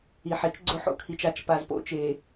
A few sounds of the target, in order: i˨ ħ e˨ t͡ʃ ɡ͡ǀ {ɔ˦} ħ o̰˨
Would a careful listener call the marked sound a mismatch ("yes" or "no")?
yes